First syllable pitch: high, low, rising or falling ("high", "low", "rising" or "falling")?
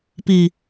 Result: low